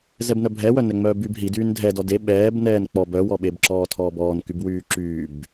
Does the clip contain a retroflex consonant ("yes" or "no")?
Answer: no